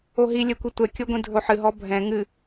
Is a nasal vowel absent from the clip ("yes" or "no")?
no